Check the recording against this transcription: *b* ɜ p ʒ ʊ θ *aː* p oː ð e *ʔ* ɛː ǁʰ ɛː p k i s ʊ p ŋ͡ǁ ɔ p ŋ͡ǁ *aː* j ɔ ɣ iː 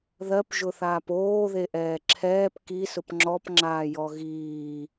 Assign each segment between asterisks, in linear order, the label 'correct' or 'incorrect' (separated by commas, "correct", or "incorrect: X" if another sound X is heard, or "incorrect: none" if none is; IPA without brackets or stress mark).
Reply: incorrect: ð, correct, correct, correct